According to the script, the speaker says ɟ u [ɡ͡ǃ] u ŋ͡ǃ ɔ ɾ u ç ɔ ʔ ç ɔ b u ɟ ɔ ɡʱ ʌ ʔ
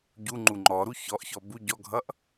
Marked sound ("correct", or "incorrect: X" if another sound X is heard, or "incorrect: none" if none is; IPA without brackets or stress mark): incorrect: ŋ͡ǃ